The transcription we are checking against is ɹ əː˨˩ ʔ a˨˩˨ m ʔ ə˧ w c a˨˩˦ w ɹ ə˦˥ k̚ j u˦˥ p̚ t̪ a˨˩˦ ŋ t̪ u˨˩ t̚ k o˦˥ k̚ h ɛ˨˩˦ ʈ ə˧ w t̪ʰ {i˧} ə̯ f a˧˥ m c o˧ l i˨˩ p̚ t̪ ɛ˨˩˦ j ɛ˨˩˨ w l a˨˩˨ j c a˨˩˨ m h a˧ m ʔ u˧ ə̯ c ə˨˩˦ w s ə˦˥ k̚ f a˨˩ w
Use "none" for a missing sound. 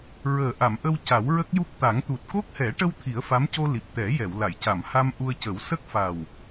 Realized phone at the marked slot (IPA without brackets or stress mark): i˨˩˦